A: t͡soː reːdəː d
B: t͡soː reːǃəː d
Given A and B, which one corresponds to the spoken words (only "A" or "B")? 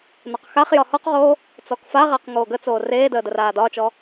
A